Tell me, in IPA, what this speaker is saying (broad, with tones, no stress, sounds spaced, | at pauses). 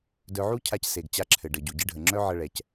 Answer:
d œ˧ ʕ u˦ cʰ a˧ c s e˨ ɡ t͡ɕ a˧ ǁʰ ɘ˨ ɖ ə˨ ɟ u˨ ɟ ɘ˧ ɖʱ ə˨ ŋ͡ǁ œ˦ ʕ ə˧ ɭ ɛ˨ c